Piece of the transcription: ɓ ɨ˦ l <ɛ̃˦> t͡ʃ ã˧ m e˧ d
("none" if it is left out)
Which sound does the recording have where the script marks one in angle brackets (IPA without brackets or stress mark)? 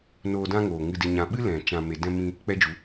ɛ̃˨